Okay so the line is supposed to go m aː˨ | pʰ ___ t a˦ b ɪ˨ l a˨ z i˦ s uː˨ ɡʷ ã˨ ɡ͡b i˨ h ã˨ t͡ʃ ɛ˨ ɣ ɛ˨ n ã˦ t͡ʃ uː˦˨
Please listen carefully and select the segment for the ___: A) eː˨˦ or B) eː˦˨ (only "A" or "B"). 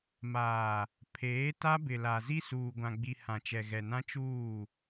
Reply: A